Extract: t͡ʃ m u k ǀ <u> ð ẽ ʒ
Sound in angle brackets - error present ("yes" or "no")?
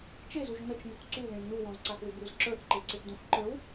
no